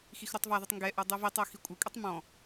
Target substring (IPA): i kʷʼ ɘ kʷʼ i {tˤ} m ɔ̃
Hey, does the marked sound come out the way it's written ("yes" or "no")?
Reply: yes